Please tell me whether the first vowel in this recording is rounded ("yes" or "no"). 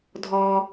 yes